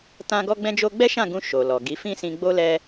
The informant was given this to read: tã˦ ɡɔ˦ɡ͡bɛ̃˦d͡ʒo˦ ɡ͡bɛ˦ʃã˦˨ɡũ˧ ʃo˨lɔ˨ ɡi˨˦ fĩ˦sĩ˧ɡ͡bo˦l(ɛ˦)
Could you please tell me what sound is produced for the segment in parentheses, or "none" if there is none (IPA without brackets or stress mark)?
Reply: ɛ˦